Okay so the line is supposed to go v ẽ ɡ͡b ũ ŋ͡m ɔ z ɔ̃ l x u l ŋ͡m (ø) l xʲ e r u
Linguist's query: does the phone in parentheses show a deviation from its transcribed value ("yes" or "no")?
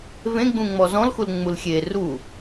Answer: yes